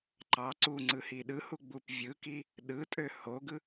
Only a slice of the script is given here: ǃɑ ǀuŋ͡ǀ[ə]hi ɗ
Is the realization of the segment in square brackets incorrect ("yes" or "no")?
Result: yes